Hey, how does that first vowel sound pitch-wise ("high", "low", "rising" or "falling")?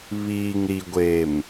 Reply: low